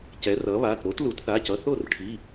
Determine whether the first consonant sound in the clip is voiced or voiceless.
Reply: voiceless